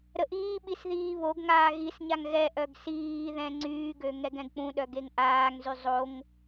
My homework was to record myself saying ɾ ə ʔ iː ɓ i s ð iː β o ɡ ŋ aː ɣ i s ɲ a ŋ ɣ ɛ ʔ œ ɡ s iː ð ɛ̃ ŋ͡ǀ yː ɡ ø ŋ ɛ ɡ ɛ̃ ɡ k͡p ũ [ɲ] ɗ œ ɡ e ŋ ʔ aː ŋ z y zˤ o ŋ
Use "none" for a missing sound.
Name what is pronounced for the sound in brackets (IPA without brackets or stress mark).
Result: none